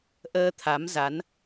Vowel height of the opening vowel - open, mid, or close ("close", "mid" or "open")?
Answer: mid